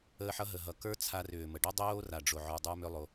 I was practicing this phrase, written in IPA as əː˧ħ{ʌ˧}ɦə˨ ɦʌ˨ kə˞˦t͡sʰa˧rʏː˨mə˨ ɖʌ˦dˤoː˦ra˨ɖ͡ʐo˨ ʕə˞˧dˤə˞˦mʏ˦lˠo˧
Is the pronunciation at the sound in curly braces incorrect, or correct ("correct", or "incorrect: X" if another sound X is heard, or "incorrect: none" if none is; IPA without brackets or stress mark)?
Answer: correct